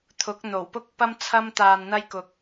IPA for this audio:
t̪ʰ ʊ˨˥ k̚ n̪ o˨˩ w p ʊ˥ k̚ p ɐ˥ m t͡sʰ ɐ˥ m t̪ aː˧ n n̪ ɐ˥ j k ʊ˧ k̚

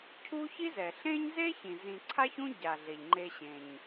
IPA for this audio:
cʰ u˦ ç i˥ z ɛ˩ ɬ ẽ˥ ɲ z e˥ ç ĩ˩ z ĩ˨ ǀʰ a˦ ç ũ˦ ɟ a˩ ɮ e˩ ʎ ŋ͡ǃ e˨ ɕ ẽ˩ ɲ

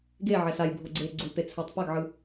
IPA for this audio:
ɡ e ʕ ɛ s a j bʱ o ɡ͡ǀ e ɡ͡ǀ u p e t͡sʰ ɛ tˤ p a ɡ ʕ ɯ

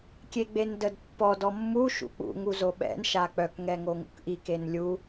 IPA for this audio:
kʲ e ɡ͡b e n d ə d pː ɔ d ɔ mː u ʃ ṵ k͡p ṵ ŋ u z o ɓ ɛ̰ n ʃ a k͡p œ k ŋ ɛ ŋ o ŋ ṵ k ʔ i k e n lʲ u

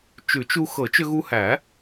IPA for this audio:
t͡ʃ ʉ˨˩˦ t͡ʃ u˧ x ɤ˨˩˦ t͡ʃ ʏ˧ ɣ u˧ h æ˨˩˦

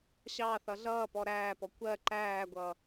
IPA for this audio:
ɕ ɑ θ ʌ ɮ ʌː p ɔ ɾ æː p ɔ kʷ ɜ ǃ æː ɡʷ ʌː

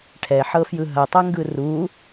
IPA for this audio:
ʈʰ ɛ ħ ɤ f j ɯ ɦ ɐ tˤ ɐ ŋ ɡ ɯ r u

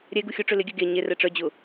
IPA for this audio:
ɾʲ ɛ ɡ u xʲ o ʈ͡ʂ ø l ɪ ɡʲ œ ɡ e ɲ e r ɛ ʈ͡ʂ œ d͡ʑ ʊ

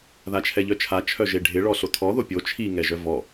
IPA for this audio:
ð a t͡ʃʰ ɛ ʎ œ t͡ʃʰ a t͡ʃʰ œ ʒ e ɖʱ ɪ ɭ ɔ ɬ o tʰ ɔ ð o pʲ o t͡ʃʰ i ŋ ɛ ʒ œ v ɔ

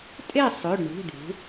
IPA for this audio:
tʼ e˥˨ sˤ ɵ˩˧˩ ɖ ɳ ṳ˩˧˩ ɖ ṳ˩˧

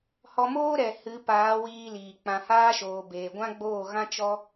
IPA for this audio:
h ɔ˧ m oː˦ ɾ ɛ˨ h ɨ˨˦ p aː˨˦ w iː˧ l iː˨ k͡p ã˧ h aː˦ ʃ oː˨ b eː˨ ɡʷ ã˦ ɡ͡b oː˦˨ ɣ ã˦ t͡ʃ ɔ˦

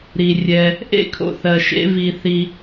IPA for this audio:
ɾ i˩ rʲ ɛ˩ | ʔ ḛ˥ kʰ o̰˧ θ ɜ˩ ʃ ḛ˧ v i˩ θ i˩

